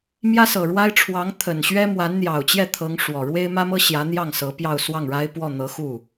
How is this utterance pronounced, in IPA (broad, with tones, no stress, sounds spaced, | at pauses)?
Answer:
m j ä˥ s ɤ˨˩ ɻ w a˥ ɪ̯ ʈ͡ʂʰ w ɑ˧˥ ŋ t̪ʰ ə˨˩ n ɕ ɥ ɛ˥ m w a˧˥ n n̪ j ɑ˨˩ ʊ̯ t͡ɕ j ɛ˥˩ t̪ʰ ɤ˧˥ ŋ ʂ w ɔ˨˩ ɻ w e˥ ɪ̯ m ä˥ m ɤ˥ ɕ j ä˧˥ n̪ j ɑ˥˩ ŋ s ɤ˧˥ p j ɑ˥˧ ʊ̯ s w ɑ˥˩ ŋ ɻ a˥ ɪ̯ p w ɔ˥˩ n̪ ɤ˧˥ x u˥˩